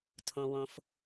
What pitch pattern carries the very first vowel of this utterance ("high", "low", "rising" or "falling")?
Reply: low